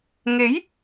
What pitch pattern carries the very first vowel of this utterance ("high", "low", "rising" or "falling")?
rising